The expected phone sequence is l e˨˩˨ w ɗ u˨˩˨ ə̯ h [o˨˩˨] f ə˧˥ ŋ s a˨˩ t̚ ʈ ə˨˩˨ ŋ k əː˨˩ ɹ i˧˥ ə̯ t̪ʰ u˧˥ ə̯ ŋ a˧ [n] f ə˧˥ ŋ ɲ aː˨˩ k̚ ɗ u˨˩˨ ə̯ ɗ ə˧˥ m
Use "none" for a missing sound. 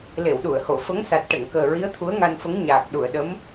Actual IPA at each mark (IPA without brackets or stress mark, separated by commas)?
o˨˩˨, n